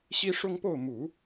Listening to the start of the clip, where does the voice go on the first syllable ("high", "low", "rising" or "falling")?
high